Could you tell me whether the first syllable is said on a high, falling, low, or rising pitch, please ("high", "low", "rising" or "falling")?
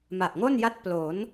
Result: low